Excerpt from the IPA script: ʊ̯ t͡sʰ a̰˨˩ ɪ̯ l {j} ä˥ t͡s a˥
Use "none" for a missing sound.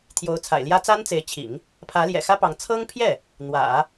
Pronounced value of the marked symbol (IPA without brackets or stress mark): j